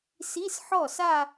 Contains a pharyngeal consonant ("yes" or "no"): yes